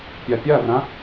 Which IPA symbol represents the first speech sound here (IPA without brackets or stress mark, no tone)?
pʲ